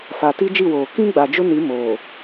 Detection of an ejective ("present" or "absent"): absent